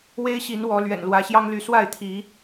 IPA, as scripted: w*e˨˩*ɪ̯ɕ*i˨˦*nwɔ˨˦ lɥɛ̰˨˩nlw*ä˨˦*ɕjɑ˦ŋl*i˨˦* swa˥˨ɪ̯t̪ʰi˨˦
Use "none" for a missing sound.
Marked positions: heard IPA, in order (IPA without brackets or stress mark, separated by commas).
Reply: e˦, i˨˦, ä˨˦, y˨˦